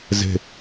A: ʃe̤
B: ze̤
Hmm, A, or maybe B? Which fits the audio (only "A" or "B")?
B